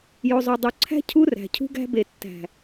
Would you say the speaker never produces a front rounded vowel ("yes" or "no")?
yes